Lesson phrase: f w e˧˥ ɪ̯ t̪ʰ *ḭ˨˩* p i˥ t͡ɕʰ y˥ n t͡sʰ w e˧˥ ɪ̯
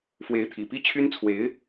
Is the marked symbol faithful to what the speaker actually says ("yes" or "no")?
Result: yes